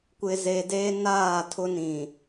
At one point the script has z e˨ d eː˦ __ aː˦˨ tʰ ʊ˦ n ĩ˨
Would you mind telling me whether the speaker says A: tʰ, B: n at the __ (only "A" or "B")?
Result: B